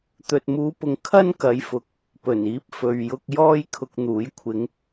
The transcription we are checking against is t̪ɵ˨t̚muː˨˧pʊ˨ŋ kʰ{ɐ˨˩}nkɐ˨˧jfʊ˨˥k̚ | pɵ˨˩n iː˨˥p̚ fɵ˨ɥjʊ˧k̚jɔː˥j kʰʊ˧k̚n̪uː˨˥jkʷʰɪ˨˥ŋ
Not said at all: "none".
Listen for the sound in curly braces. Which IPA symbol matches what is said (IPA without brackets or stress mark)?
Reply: ɐ˥